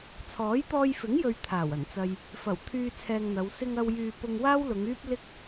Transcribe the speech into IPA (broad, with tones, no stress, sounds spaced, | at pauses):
t͡sʰ ɔː˨˥ j t̪ ɔː˧ j f ɪ˨˥ ŋ j ɵ˨ ɥ t̪ʰ aː˨˩ w ɐ˨˩ n t͡s ɐ˧ j | f ɐ˨˩ w t̪ʰ yː˧ t͡sʰ ɛː˧ ŋ n̪ ɐ˨˧ w s ɪ˧ ŋ ɐ˧ w j yː˧ p ʊ˧ ŋ w aː˥ w l ʊ˨˧ ŋ yː˥ p̚ l ɪ˥ k̚